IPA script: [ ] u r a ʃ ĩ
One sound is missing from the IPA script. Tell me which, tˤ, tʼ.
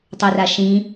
tˤ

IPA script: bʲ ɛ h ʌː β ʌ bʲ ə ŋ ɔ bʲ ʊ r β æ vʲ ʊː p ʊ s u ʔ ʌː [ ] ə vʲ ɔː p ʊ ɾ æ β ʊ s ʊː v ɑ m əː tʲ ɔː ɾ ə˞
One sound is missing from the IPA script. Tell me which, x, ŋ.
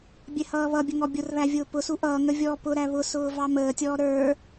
ŋ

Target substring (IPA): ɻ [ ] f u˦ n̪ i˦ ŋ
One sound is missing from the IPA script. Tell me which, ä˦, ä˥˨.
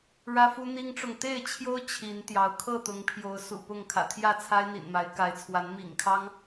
ä˦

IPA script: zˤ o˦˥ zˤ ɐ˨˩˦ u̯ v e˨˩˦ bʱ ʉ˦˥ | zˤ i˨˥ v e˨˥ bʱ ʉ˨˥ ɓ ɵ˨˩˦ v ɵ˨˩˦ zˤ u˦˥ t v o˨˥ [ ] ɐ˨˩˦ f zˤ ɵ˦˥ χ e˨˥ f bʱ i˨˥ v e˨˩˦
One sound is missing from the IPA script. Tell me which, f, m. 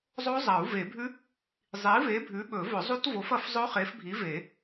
f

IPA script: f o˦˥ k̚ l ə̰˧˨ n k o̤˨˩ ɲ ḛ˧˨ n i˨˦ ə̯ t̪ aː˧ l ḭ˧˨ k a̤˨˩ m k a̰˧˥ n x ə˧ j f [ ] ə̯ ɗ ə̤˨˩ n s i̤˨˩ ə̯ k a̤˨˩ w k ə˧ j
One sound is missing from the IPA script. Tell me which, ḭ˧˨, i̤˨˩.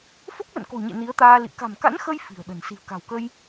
i̤˨˩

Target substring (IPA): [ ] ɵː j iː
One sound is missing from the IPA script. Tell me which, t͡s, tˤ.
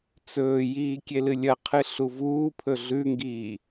t͡s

